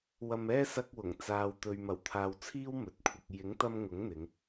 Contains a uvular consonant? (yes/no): no